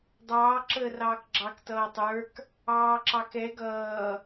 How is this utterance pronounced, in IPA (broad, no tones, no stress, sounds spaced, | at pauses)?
dˤ ɑː ǁ əː r ɑː k ɡ͡ǁ ɑ k t ʌː tˤ ə˞ k | ɑː ǁ ɑ k ɛ ɡ ʌː